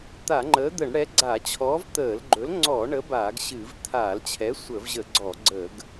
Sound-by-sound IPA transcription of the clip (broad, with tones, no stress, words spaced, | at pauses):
t̪a˧˩˧ŋ͡ǃəː˨˥d̪ə˧˩˧ɳ ɽɛ˨˥ɡ͡ǀa˧˩˧t͡ɕʰɔː˨˥v t̪əː˧˩˧lɡ͡ǃɵ˨˥l ŋ͡ǀɔ˧˩˧ ɳə˨˥baː˧˩˧ɡ ɕɨ˧˩˧v t̪ʰaː˧˩˧lt͡ɕʰɛ˨˥ sʷəː˧˩˧vʑə˧˩˧ɡ͡ǀɔ˧˩˧ɡ͡ǀəː˧˩˧ɡ